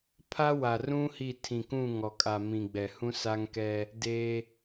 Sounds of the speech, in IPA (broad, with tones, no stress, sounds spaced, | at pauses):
pʰ a˦ w a˨ r ũ˦ h i˦˨ tʰ ĩ˨ k ũ˦˨ ŋ ɔ˨ kʼ a˨ m ĩ˨ ɡ͡b ɛ˨ h ũ˦ s a˦ ŋ k ɛ˦ | d e˦